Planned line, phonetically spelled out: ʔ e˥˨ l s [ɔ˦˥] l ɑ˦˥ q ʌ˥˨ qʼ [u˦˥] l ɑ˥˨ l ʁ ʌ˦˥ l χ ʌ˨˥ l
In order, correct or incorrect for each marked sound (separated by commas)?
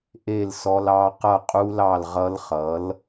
correct, correct